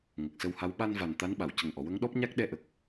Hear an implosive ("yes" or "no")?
yes